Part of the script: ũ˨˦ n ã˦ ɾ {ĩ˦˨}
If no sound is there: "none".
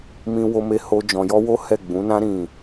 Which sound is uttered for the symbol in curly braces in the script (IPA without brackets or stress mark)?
ĩ˦˨